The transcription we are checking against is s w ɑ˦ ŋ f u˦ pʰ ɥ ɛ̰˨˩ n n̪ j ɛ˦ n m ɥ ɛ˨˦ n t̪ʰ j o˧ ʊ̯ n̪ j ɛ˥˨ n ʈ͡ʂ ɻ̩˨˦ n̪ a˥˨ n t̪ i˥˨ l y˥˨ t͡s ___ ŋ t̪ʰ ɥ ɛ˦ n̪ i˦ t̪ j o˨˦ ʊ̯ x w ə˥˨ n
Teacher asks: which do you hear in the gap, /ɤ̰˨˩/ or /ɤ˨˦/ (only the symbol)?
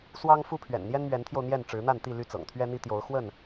ɤ̰˨˩